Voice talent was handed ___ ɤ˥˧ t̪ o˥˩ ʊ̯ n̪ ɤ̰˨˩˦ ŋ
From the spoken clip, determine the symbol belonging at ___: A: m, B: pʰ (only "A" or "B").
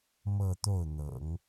A